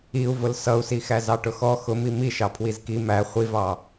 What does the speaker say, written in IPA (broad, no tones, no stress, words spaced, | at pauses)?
iu̯vʊl sʌu̯sixæ zɑʈʊxɔ xʊmi miʃɑ pʰwizki mæ χʷivɑ